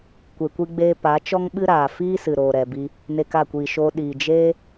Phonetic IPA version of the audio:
kʷ e˧ kʷ i˦ ɡ͡b eː˦ p a˨˦ t͡ʃ ɔ˦ ŋ ɓ ɨ˦ ɾ aː˨ f iː˦ s ɨ˨ ɾ oː˨ ɾ ɛ˨ b i˧ | n e˧ k a˦˨ kʷ iː˨ ʃ oː˧ ɗ iː˨ d͡ʒ eː˦

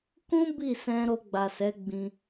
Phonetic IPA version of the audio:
k ũ˦ b i˦˨ s ɛ̃˧ ɾ o˧ ɡ͡b a˨ s ɛ˨˦ ɡ͡b ĩ˧

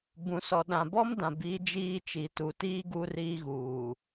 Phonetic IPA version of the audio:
b ũ˨ s ɔ˨ ɗ ã˨ b ɔ˦ m d ã˨ b iː˦ d͡ʒ iː˦ t͡ʃ i˨ t u˨ t iː˦ ɡ uː˦ r iː˦ ɣ uː˨

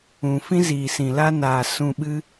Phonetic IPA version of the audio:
ũ˨ f ĩ˦ z iː˨ s ĩ˨ l a˧ n aː˨ s ũ˧ ɓ ɨ˦

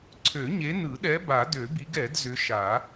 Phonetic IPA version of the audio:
ǀʰ ø˨˩˦ ɲ e˨˦ n ɯ˨˩˦ ɗ ɛ˨˦ b a˨˩˦ d ø˨˩˦ b i˨˦ ɡ ɛ˨˩˦ d z ʏ˨˦ ʃ a˨˩˦

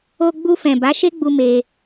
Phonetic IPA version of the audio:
o˧ ɡ͡b u˧ f ɛ̃˨ b a˨˦ ʃ e˦ ɡ͡b u˧ m e˧

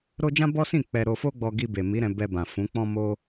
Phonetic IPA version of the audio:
ɾ o˦ d͡ʒ ã˦ b ɔ˦ s ĩ˦˨ k͡p ɛ˧ ɾ o˧ f o˦ ɡ͡b ɔ˧ ɡ i˧ b e˨ m i˨˦ ɾ ɛ̃˧ b ɛ˧ b ã˨ f ũ˨˦ k͡p ɔ̃˦ m o˦

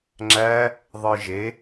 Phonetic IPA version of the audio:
ŋ͡ǁ æ | ðˤ ɯ ʒ e

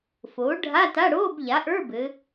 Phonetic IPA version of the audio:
f oː˩˥ ɖʱ a˧˥˧ t a˧˥˧ ɽ oː˧˥˧ b ʎ a˩˥ ʔ ə˞˧˥˧ b ɘ˩˧

